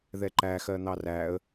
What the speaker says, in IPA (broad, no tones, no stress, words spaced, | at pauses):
ðɛǃæ xɜn̪ɑræə̯